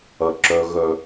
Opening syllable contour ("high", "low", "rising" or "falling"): low